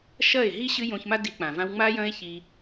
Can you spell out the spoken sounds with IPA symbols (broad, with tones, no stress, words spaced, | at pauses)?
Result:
ʃɐ˦˨e̯ɦi˦ ɕɨ˦jõ˧çma˦ di˧k͡pã˨vã˦w ŋ͡ma˦jɐ̃˦e̯çi˧